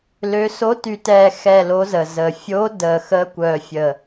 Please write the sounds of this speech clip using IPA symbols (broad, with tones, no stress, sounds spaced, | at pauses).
l ø˨˦ s o˨˦ t y˨˩ t ɛː˨˩ x ɛ˨˩ l o˨˦ z ə˨˩ z əː˨˩ fʲ oː˨˦ d əː˨˩ x əː˨˦ kʷ œː˨˩ fʲ əː˨˩